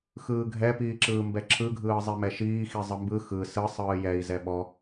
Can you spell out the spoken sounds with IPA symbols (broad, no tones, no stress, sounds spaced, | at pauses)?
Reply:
x ɯː ɡʱ ɛ p iː ǁ ɯː m b ɛ ǁʰ ɯ ɡʱ ɯː zˤ i m ɛ ʃ iː x i zˤ ɯ m b ɯ x ɯ s ɯ sˤ ɯː j ɛ i̯ z ɛ ɓ ɔ